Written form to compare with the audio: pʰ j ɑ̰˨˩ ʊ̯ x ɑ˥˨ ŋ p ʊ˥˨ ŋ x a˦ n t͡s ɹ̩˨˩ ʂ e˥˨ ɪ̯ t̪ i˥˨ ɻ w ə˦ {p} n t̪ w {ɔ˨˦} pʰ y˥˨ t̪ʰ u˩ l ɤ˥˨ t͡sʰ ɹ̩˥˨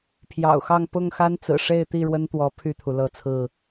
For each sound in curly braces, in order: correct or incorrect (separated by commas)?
incorrect, correct